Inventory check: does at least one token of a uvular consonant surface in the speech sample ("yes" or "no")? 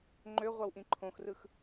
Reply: yes